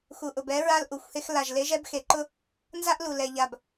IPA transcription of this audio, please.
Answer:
x u˨ ʔ ʊ˨ b ɛ˨˦ ɹ a˦ l ʔ u˨ xʷ h e˦ x l a˨ ʒ l e˨˦ ʒ ɛ˦ b x e˨ ǃ ʊ˦ | n z a˦ ʔ l u˨ l ɛ˨ ʎ a˨ b

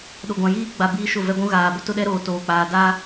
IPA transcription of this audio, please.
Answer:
ɗ o˨ ɡʷ ã˨ j iː˦ ɡ͡b a˨ b iː˦ ʃ ʊ˦˨ v ɛ˦ ɡʷ ũ˦ ɣ aː˨ b ʊ˦ t ʊ˦ ɗ ɛ˦ ɾ oː˨ t oː˨ k͡p aː˨ d a˦

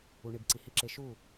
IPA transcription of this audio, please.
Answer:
u˨ ɳ i˨ b ǀ i˨ h i˨ ǁ e˨ ʃ u˦˨

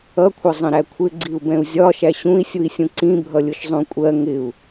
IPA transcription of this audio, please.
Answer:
ʌ kʷʰ ʌ zˤ ə̃ ɾ æ kʷʰ ɪ ɡ͡ǀ i u̯ b ɛ̃ u̯ zʲ ɒ ʃ æ ɕ ũ i̯ sʲ u i̯ sʲ ũ ǀ ĩ bʱ ʌ lʲ ʊ ʃ zˤ ũ kʷʼ ɜ ŋ ɪ u̯

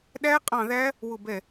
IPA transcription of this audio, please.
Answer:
ɗ æ˦˥ qʼ ɑ̃˦˨ ð æ˦˥ | w ʊ˦˨ b ɛ˦˨

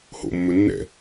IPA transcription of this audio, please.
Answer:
h o̰ mː ɵ nː ɛ̰

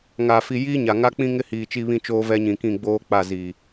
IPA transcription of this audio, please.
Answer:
ŋ a˨ f i˨ j iː˦ ɲ a˨ ŋ a˦ k͡p ĩ˦ ŋ ɪ˦ h iː˨ t͡ʃ i˦ β ĩ˦ t͡ʃ oː˦ v ɛ˦ ɲ ĩ˨ k ĩ˦˨ ɡ͡b oː˦ k͡p a˦˨ z i˨

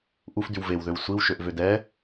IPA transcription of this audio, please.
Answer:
ʔ u f d y w v e w ð ø w sʷ i w ʃ ø ʔ v ø d ɛ

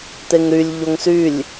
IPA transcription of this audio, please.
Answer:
t̪ e ŋ ɾ y lʲ ʎ o ŋ s y lʲ

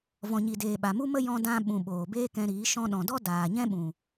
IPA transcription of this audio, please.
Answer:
v ɔ̃˨ ɲ i˨ d eː˨ ɓ a˨ m u˦ m ə˦ j ɔ̃˧ d ã˧ ɓ ũ˨ ɓ oː˨ b eː˦ k ɛ̃˧ ɾ iː˨˦ ʃ ɔ̃˧ ɗ ɔ̃˨ d ɔ˦ d aː˨ ɲ ɛ̃˦ ɓ ũ˨

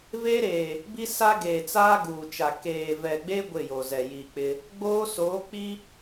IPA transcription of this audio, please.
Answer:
v e˦ ɾ eː˨ | b i˦ s a˦ ɡ eː˨ t͡s aː˦ ɡ uː˨ t͡ʃ a˨ k eː˨ v ɛ˨ ɡ͡b e˦ ɡʷ ɪ˦˨ j o˨ z ɛ˨ j i˨ k͡p ɪ˦ | ɡ͡b oː˦ s oː˨˦ k͡p i˦

